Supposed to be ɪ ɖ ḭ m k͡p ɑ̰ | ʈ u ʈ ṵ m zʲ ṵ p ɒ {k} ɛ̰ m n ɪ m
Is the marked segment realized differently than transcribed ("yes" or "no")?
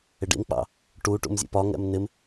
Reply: yes